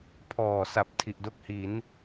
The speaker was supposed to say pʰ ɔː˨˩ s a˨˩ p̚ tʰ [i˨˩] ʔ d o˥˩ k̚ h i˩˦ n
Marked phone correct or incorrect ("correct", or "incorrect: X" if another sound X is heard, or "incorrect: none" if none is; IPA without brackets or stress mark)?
correct